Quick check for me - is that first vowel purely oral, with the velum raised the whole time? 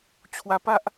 yes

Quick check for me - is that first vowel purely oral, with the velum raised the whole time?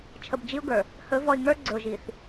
yes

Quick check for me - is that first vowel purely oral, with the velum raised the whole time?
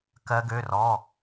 yes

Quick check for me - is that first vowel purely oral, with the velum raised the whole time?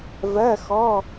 yes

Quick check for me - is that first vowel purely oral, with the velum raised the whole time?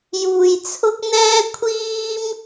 yes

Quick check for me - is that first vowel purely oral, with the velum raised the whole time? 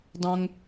no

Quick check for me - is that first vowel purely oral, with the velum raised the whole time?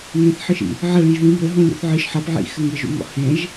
no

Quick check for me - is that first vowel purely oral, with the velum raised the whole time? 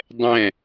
no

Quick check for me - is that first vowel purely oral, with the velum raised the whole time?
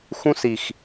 no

